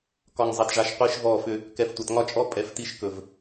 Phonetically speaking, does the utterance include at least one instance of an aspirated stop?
no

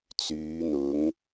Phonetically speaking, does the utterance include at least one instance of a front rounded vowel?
yes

